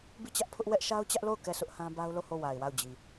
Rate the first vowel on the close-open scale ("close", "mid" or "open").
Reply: close